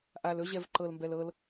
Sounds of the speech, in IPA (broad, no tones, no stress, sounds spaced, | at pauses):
ʔ a l ɵ ʑ ɛ v ǃ ɤ l m b ɛ l ɤ l